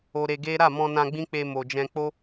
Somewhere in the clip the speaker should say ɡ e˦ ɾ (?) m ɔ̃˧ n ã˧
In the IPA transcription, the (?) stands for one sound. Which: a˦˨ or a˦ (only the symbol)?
a˦˨